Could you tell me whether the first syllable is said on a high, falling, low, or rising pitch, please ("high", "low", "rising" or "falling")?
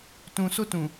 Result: low